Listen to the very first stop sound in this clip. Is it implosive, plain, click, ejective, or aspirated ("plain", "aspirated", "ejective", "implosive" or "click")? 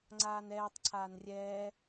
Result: click